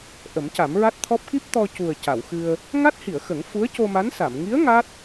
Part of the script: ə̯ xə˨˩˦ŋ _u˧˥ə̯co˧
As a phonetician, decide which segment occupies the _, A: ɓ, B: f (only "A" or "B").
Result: B